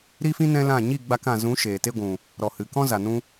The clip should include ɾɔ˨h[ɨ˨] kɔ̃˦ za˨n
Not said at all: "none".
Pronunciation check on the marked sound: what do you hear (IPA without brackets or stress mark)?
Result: ɨ˨